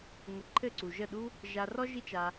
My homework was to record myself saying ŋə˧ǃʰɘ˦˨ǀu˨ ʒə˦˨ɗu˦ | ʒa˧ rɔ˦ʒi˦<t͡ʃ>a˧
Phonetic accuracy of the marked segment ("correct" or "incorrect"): correct